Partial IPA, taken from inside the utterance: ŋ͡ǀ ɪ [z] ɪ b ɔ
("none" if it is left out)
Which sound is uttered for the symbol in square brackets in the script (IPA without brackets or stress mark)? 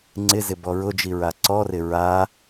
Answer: z